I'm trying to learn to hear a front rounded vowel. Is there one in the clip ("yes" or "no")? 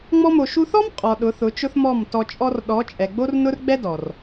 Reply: no